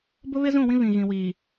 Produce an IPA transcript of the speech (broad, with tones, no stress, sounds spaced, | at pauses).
b ʊ˦ β ɪ˦ z ũ˦˨ w ĩ˦ β ĩ˨ ɣ ĩ˨ w iː˨